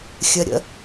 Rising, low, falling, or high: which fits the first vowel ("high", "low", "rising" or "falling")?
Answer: low